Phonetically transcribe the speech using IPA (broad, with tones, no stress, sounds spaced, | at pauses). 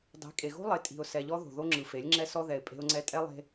dˤ e̤˨˦ kʼ e˨ ɣ o̤˦ lˠ e˨ tʼ i̤˨ ʊ̯ s ɛ˨ ʎ ɔ˦ ð o̤˨ ð o˦ ŋ͡ǁ ɯ˨ f e˨˦ lʲ ŋ͡ǁ ɛ˦ s ɔ˦ ð ɛ˨ ɪ̯ pʼ e̤˦ ʊ̯ ŋ͡ǀ ɛ˦ tʼ ɛ˦ lˠ e̤˦